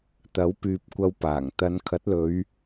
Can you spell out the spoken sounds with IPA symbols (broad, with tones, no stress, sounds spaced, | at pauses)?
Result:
t̪ ɐ˨˥ w p yː˨ p̚ kʷ ɐ˧ w p aː˨˩ ŋ t̪ ɐ˨˧ n kʰ ɐ˨˥ t̚ l ɵ˨˧ ɥ